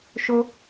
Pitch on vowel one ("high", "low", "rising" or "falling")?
high